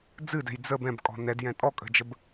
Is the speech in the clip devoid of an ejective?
no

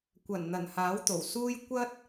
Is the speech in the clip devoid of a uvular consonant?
yes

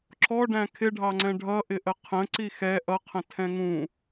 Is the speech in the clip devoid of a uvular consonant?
no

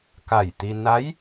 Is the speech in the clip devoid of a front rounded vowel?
yes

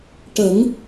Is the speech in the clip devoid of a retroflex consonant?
no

